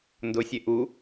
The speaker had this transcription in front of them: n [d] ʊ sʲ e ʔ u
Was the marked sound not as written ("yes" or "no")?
no